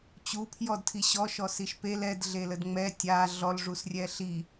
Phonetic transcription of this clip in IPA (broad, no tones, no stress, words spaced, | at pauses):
t͡ɕupʰjɔd tʰiɕɔʃɔ siʃpel ɛd ɮelədŋ͡mɛ tʲa ɮɔlʐusrʲɛ ɬi